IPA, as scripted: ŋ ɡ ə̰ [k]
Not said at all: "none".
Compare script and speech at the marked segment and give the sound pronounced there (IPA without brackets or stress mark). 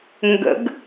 ɡ